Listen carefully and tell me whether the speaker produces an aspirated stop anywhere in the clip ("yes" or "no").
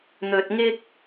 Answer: no